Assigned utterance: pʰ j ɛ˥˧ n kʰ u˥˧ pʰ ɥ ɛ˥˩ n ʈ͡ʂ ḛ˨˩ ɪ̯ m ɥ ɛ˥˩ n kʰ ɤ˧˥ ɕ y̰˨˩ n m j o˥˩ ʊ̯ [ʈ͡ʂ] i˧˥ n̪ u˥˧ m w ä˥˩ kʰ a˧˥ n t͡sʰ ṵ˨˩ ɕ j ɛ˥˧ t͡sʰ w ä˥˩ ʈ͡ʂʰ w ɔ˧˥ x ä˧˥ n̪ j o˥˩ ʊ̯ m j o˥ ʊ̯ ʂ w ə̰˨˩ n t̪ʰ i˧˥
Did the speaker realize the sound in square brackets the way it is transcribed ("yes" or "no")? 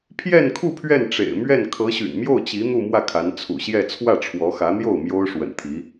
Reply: no